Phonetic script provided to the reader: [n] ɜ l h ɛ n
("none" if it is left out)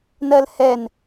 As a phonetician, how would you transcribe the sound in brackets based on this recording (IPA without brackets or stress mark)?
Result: n